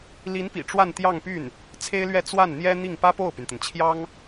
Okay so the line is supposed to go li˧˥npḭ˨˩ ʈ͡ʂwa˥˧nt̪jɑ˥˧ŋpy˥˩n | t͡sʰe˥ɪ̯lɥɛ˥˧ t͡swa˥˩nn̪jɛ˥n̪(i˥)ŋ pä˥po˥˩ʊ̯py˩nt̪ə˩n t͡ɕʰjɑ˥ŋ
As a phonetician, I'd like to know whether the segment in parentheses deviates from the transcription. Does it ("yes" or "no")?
yes